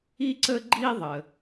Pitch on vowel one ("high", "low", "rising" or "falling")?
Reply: high